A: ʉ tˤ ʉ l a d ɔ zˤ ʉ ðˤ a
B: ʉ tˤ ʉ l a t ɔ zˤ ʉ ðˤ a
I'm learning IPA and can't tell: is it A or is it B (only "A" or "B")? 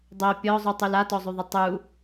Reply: B